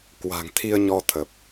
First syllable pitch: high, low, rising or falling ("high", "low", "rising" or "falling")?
low